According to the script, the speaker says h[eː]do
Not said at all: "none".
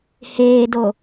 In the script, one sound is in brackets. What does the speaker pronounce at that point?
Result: eː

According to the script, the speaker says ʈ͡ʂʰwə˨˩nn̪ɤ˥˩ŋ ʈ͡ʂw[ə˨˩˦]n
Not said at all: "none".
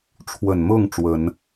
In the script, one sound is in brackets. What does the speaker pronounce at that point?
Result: ə˨˩˦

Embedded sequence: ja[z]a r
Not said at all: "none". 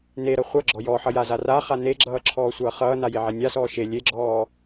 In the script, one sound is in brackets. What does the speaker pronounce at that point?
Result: z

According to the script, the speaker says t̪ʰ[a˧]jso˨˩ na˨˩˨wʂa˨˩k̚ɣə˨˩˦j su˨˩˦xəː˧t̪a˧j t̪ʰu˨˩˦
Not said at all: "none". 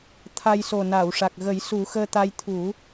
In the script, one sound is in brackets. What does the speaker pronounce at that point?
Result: a˧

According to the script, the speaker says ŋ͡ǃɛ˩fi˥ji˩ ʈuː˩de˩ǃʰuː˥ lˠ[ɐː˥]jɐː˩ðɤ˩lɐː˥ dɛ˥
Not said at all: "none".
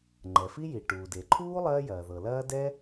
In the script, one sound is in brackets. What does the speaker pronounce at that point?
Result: ɐː˥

